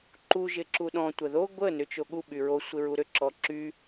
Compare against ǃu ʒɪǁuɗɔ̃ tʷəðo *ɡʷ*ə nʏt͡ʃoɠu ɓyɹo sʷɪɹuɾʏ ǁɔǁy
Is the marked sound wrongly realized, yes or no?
no